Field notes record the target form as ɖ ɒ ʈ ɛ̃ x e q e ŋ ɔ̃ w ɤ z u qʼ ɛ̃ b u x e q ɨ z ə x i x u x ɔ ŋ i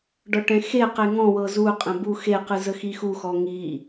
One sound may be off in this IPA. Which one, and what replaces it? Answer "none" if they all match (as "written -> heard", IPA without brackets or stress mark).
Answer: none